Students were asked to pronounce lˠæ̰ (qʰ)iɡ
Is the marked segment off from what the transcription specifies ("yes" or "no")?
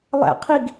no